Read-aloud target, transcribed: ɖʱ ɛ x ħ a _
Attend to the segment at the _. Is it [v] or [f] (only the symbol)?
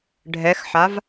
v